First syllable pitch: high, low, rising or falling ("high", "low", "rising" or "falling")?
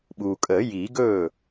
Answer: low